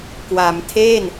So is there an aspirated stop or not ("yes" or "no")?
yes